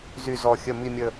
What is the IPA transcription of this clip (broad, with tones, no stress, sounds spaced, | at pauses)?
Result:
z y˨˩ z ɔ˨˩ xʲ ə˨˩ m i˨˩ mʲ ə˨˩